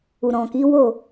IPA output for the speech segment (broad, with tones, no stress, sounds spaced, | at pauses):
u˨ ɾ ɔ̃˨ k i˨˦ w o˦˨